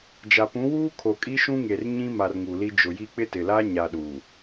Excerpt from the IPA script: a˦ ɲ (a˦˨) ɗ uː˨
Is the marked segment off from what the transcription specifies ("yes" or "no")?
yes